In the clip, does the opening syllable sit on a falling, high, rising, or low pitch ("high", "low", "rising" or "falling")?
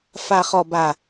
low